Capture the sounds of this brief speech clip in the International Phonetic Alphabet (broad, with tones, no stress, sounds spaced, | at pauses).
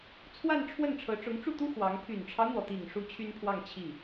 t͡sʰ w a˥˧ n ʈ͡ʂʰ w ə˥˩ n ʈ͡ʂʰ ɤ˧˥ ʈ͡ʂ ʊ˧˥ ŋ ʈ͡ʂ u˥˩ t̪ u˥ x w ɑ˧˥ ŋ pʰ y˨˩ n ʈ͡ʂʰ ɑ˦ ʊ̯ n̪ w ɔ˩ t̪ i˨˩ ŋ ʂ u˥ t͡ɕʰ y˥ n pʰ w ɑ˥˧ ŋ t͡ɕʰ i˥˩